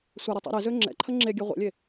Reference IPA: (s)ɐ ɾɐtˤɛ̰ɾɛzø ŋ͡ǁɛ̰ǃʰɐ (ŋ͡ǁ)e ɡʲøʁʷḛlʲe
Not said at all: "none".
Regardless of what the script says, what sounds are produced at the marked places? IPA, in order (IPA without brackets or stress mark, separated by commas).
sʷ, ŋ͡ǁ